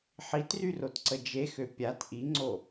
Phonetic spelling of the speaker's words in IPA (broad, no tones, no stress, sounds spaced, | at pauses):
ħ i t r y r o t ǀ ə d͡ʒ e x ø pʲ a t ʔ i ŋ͡ǀ o